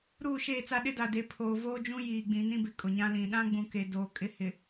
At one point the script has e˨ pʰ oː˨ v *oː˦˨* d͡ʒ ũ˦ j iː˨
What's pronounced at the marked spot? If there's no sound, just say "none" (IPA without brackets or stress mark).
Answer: oː˦